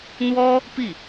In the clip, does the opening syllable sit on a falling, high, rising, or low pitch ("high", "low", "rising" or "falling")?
high